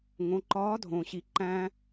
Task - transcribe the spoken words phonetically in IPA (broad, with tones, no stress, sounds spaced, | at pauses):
ŋ õ˩˧ ǃ ɒː˧˥ dʱ õ˩ ɕ i˩ ǃ æ̃˧